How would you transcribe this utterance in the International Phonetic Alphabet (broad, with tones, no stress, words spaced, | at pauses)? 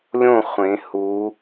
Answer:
lʲõ˥˨ χʷẽ˩˧hu˩˧